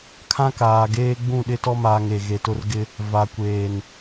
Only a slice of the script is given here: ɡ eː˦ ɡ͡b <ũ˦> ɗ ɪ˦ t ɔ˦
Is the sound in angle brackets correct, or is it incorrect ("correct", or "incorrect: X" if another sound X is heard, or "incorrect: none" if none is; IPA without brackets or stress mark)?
incorrect: ũ˦˨